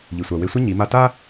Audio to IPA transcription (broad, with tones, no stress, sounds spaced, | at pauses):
ʎ i˩ sʷ a˩ w e˧ sʷ ɐ˥ ɲ i˩˧ m a˧ t a˥